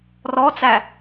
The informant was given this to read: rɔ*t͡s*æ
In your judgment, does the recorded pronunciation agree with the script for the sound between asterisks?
yes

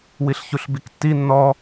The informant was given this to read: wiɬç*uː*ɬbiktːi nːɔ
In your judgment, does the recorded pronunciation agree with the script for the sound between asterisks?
no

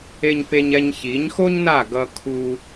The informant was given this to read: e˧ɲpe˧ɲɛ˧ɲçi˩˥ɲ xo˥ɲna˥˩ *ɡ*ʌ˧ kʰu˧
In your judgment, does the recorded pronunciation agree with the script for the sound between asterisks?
yes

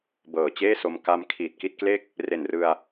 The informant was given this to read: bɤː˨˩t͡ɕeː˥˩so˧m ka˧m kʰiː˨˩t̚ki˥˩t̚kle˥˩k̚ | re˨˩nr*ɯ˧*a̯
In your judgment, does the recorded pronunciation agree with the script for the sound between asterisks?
yes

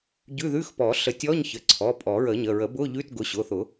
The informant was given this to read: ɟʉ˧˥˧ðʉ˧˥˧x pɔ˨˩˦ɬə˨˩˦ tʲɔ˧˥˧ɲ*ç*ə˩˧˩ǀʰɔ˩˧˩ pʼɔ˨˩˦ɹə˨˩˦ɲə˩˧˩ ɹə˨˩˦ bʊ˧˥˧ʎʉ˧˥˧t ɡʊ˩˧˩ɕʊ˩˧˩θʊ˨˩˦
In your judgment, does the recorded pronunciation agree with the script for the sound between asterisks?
yes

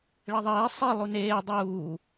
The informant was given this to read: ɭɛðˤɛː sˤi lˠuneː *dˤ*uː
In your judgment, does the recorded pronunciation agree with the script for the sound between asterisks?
yes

